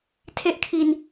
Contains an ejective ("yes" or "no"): no